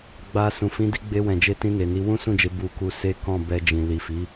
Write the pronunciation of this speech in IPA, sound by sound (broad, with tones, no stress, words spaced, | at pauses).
ɡ͡ba˧sũ˨ fĩ˨˦di˧ɡ͡be˧wɛ̃˨ d͡ʒe˧tĩ˧ ne˨ni˨˦ wũ˦sũ˦˨d͡ʒe˧ bu˧ku˧ se˦ kɔ̃˦˨bɛ˧d͡ʒĩ˨ li˨fi˨˦